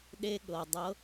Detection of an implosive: present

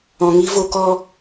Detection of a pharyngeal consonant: absent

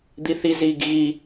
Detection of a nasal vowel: absent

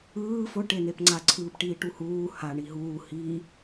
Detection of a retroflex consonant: present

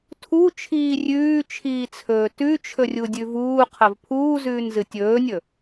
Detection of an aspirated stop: present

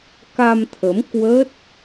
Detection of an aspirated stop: present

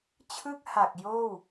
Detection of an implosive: absent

